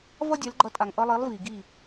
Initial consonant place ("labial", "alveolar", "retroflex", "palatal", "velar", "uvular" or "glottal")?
labial